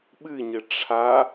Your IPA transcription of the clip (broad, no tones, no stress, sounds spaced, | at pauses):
ɓ ɨ ɲ ɘ ʈ͡ʂʰ a